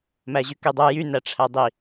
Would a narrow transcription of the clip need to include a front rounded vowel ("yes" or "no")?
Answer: yes